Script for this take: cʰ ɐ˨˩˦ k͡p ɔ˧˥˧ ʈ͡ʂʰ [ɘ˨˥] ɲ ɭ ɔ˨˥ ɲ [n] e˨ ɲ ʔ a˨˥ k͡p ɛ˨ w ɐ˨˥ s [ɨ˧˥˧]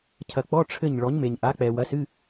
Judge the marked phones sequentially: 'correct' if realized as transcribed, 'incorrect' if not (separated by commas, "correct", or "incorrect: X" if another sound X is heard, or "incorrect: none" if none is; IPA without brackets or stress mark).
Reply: incorrect: ɘ˥˩, incorrect: m, correct